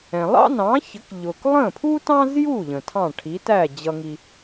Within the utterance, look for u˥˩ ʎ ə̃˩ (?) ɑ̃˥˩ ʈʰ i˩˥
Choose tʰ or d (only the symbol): tʰ